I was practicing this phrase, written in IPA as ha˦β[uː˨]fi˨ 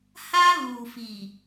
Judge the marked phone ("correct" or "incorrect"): correct